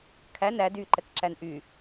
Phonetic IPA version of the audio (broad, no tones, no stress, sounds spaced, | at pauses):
kʰ æ n æ d y ǃ ɛ k ǁ æ n ʔ y